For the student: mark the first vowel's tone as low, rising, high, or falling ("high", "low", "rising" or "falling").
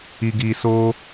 low